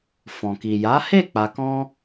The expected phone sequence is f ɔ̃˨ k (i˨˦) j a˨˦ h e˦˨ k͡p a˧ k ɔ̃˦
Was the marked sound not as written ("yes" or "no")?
yes